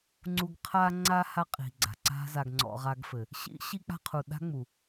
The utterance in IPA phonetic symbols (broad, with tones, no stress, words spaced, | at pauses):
ŋ͡ǀu˧ɡ qʰa˧ŋ͡ǀa˧ ha˦qʼi̤˨ɡ͡ǀa̤˨ ǀa̤˦za˧ɡŋ͡ǀɔ̰˧ ʁa˧ɡfɘ˨ | ɕḭ˦ ɕi˦k͡pa̤˦qʰu˨ ɗa̤˦ŋ͡mu˨